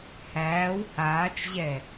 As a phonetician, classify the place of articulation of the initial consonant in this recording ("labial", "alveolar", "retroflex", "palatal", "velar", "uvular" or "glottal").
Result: glottal